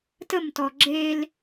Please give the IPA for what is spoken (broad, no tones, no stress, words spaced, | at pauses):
təmtɔ ɡ͡ǁel